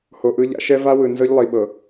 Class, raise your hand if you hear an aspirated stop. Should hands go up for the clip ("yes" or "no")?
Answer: no